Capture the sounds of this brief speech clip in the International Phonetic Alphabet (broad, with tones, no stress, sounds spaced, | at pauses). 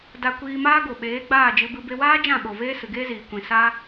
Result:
d a˧ kʷ iː˧ m aː˦ ɡ o˨ ɓ eː˨˦ ɡ͡b aː˦˨ d͡ʒ ɨ˧ b ɨ˧ b e˧ w aː˦ d͡ʒ ã˦˨ ɓ o˨ v eː˦ s ɨ˨ ɡ eː˦ z iː˨ kʷ ĩ˨ s a˦